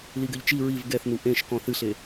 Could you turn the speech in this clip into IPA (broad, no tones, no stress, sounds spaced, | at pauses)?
l i ɡ ɘ ʎ t͡ʃ i ɹ i v ɡ ɛ θ n u ʔ ẽ ʃ k ɔ̃ θ ɨ ɬ e